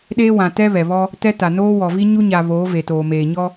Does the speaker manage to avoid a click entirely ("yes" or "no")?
yes